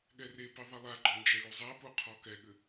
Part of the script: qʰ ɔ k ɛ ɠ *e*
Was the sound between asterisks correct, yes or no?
no